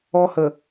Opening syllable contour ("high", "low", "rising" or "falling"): high